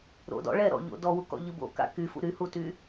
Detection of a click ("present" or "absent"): absent